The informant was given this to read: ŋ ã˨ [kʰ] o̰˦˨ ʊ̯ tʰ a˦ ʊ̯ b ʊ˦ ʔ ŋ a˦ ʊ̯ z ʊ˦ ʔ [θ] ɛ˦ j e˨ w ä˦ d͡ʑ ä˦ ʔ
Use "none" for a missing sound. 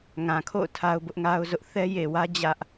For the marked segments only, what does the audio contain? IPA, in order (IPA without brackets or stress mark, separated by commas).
kʰ, θ